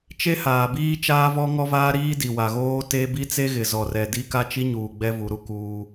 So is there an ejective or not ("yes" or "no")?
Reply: no